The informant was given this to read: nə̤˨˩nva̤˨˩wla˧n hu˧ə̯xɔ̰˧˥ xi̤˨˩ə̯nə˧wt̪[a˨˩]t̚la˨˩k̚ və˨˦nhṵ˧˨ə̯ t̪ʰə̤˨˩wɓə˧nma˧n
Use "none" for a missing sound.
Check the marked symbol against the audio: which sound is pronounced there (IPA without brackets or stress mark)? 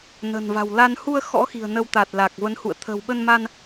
a˨˩